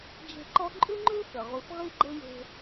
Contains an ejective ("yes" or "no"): yes